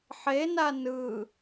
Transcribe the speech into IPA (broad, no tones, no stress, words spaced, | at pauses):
ħena nɯ